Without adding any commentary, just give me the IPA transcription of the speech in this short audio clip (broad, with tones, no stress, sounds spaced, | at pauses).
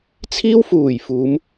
t͡sʰ iː˥ w f uː˨˩ j f uː˨˧ m